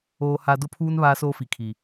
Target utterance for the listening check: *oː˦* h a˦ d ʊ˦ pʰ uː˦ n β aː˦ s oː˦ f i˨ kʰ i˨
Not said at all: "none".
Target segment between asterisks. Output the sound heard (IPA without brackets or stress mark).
oː˦